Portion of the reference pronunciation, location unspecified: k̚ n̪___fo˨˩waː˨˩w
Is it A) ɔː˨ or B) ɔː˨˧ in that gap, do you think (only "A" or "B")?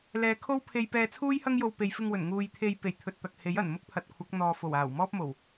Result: A